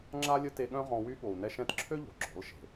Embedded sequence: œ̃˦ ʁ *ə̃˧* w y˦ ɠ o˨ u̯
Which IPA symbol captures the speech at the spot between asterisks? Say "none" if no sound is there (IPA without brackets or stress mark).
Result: ɔ̃˧